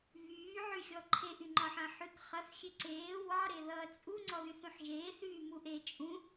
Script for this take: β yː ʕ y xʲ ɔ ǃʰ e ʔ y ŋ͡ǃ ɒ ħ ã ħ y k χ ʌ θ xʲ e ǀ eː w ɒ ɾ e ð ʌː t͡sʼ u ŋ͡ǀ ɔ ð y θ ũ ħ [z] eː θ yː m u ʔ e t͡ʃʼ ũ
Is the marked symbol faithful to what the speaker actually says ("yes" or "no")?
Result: no